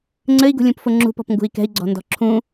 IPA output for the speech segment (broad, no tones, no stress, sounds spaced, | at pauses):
ŋ͡ǀ ɘ i̯ ɡ ṳ lʲ ũ p f ʊ ŋ͡ǁ ṳ p ɔ̤ p ŋ ɡ ṳ i̯ k ɛ̤ i̯ ɡ͡ǀ ɔ̤ n d ɔ̤ ǁʰ ũ